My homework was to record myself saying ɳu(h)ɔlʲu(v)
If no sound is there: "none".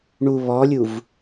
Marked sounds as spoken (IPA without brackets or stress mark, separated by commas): β, v